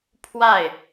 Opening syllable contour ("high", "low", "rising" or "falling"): falling